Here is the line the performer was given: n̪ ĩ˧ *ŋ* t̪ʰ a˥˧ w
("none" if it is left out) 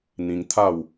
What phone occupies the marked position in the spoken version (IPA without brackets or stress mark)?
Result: ŋ